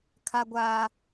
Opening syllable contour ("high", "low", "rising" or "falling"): high